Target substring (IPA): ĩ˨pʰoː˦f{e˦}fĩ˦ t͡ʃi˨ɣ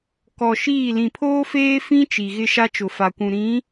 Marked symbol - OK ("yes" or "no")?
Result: no